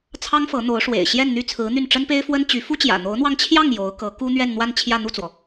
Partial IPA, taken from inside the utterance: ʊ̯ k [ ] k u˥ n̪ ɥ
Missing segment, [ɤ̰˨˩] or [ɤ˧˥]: ɤ˧˥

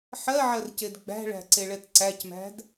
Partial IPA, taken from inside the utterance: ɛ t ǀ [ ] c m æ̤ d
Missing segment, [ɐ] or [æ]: æ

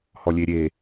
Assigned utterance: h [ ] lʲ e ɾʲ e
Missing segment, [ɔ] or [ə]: ɔ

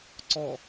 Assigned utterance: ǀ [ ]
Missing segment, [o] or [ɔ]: ɔ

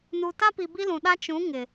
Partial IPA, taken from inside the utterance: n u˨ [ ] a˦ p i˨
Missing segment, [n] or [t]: t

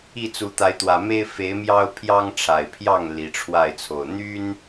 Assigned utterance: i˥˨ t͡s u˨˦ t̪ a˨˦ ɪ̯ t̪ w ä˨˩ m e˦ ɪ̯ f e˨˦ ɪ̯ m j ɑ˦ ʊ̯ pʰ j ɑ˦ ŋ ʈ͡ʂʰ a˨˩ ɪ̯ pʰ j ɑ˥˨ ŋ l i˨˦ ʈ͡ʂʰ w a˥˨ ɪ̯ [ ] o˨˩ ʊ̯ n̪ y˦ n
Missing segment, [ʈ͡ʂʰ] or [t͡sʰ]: t͡sʰ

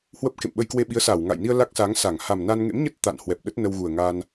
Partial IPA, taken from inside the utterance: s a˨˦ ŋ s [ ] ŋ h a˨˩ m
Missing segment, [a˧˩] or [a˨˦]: a˧˩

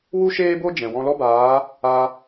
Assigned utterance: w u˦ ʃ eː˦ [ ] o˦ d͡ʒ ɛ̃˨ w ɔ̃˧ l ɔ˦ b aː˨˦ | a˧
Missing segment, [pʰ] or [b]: b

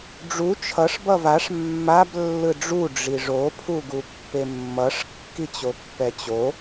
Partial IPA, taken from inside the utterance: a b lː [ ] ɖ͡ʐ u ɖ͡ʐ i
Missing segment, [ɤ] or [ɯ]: ɯ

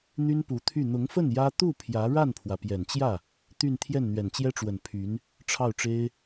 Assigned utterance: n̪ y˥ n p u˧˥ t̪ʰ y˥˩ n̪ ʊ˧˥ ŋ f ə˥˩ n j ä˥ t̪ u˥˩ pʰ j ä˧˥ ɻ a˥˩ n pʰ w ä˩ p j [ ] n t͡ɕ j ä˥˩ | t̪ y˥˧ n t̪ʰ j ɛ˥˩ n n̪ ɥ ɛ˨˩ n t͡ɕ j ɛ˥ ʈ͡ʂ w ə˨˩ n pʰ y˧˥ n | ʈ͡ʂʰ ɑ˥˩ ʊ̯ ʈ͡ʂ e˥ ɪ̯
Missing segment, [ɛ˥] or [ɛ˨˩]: ɛ˨˩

